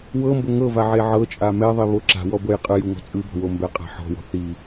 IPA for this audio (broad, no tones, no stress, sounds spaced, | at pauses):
w ɤ m b o ŋ ɤ v a ʕ e ʕ ɤ t͡ʃʼ a m ɛ ðˤ i β o ǁ a̤ w ɔ b ɤ j qʼ ɯ j u ŋ ɔ̤ t͡sʼ ɯ b ɔ̤ w o m b ɛ qʼ a̤ ħ ɔ̤ w ɔ̤ θ i